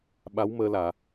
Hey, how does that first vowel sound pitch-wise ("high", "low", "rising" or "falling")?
rising